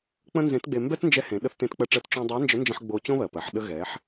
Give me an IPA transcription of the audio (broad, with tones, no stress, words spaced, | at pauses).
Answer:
k͡pə̃˥nzẽ˧˥tɡ͡be˧ mbɛ˥tnd͡ʒɛ˧˥ hẽ˩˧ ɗə˧θtẽ˧t k͡pɜ˧ʈ͡ʂɜ˧t ʈ͡ʂõ˥ dˤɜ˧˥nd͡ʒə˧˥nd͡ʒə̃˧ħ ɡ͡bo˧ t͡ɕõ˥βɜ˩pɜ˩˧ħ ɗə˧ɣɛ˩˧ħ